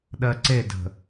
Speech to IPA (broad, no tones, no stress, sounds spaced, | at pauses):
ɗ ɜ ǀ e d ə̤